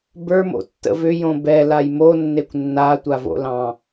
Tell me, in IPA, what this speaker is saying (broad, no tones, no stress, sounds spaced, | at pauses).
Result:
b ə˞ m o̰ tː ə̰ v ʏ j õ b ɛ l a j m o nː e kʷ nː a tʷ a v o̰ l ɑ̃